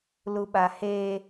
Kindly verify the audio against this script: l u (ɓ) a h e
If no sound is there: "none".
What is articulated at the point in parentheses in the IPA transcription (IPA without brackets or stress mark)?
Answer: ɓ